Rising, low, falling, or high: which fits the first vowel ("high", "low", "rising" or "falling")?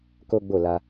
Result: high